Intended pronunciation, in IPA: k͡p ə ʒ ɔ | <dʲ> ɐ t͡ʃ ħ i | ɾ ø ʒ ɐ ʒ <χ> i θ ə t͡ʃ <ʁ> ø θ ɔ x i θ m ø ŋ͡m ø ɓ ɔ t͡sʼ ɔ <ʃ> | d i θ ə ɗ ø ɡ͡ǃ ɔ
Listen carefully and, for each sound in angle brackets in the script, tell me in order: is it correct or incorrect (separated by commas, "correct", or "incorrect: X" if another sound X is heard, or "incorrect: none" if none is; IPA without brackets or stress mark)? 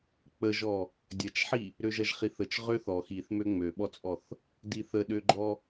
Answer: correct, correct, correct, incorrect: θ